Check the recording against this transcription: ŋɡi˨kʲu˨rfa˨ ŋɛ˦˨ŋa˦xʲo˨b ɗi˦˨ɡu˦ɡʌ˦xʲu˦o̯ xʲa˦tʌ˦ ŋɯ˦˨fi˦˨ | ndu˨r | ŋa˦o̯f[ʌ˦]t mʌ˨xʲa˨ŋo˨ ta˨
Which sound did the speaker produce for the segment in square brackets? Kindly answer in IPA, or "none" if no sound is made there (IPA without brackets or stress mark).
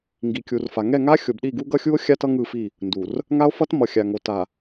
ʌ˦